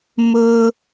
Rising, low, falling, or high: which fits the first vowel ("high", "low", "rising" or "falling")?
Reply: high